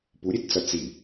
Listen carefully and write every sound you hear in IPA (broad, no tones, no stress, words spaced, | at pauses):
puɾʲett͡sʌ t͡si